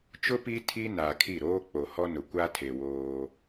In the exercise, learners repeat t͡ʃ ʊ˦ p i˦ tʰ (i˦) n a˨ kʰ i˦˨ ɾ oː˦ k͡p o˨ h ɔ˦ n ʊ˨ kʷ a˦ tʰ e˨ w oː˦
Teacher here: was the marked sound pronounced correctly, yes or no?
yes